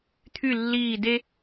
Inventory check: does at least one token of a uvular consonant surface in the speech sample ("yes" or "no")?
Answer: no